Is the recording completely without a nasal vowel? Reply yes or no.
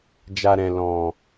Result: no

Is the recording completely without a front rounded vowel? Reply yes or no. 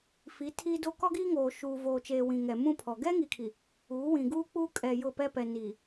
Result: yes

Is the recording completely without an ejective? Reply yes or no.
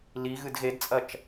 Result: no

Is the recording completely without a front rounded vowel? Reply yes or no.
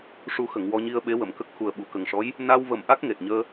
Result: yes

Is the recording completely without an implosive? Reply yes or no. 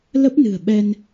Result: no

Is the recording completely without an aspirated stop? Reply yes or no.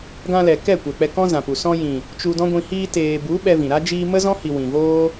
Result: yes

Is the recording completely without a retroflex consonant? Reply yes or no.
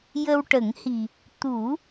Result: no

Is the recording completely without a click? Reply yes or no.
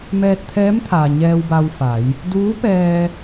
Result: yes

